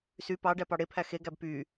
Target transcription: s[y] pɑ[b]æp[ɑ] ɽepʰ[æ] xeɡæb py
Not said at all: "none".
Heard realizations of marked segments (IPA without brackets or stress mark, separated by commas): y, ɖ, ɑ, æ